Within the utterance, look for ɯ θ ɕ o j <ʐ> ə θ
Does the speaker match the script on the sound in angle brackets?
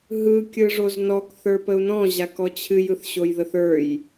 no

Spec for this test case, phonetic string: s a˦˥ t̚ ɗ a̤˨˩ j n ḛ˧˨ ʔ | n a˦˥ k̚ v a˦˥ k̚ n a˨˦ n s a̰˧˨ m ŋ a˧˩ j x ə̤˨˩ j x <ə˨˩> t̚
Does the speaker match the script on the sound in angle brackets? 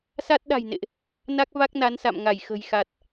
no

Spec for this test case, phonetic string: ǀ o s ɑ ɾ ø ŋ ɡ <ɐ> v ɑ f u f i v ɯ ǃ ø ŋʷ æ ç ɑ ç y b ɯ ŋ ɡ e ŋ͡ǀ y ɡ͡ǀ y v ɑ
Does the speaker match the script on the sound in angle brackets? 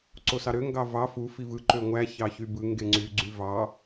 no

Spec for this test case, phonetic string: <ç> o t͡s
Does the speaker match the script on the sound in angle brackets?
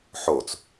no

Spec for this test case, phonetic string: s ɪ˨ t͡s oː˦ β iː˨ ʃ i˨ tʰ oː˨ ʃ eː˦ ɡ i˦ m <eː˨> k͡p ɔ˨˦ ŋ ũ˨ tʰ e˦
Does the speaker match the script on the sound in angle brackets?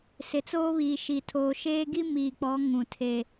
no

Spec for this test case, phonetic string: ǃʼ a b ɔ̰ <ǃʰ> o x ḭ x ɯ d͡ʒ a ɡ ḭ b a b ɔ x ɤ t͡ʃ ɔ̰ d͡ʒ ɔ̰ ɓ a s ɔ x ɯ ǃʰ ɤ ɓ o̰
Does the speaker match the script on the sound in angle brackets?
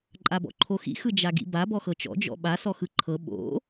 yes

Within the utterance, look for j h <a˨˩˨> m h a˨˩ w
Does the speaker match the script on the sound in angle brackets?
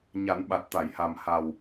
no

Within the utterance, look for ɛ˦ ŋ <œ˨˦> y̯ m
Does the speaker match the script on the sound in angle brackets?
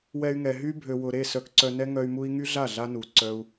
no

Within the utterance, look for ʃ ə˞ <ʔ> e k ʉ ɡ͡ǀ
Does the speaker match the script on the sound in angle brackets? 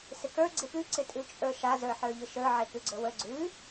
no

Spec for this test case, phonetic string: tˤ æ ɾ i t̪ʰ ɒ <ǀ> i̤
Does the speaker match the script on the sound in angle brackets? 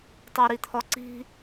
yes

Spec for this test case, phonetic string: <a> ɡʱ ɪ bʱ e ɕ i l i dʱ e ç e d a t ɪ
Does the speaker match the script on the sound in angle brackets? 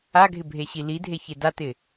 yes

